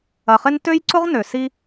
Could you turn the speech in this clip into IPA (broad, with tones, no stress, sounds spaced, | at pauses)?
ɐ˨ χ ɪ˧ n t ø˦ j ǀ ʊ˦ ʁ n ø˨ s i˧